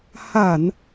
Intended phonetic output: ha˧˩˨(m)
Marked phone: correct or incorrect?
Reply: incorrect